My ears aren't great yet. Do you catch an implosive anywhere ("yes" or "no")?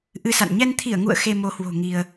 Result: no